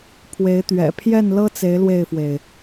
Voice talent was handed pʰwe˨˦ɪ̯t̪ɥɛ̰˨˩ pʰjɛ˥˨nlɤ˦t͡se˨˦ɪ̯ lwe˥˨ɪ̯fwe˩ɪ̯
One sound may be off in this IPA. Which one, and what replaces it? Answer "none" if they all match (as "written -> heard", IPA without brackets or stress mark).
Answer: none